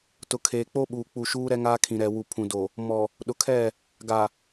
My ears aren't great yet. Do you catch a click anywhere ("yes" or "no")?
no